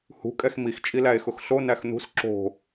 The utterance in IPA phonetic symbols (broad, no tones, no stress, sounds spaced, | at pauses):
h ṳ kʼ ɛ x m i x t͡ʃʼ i l æ e̯ x ʊ x ɬ o n æ x n ṳ s ǁ o̤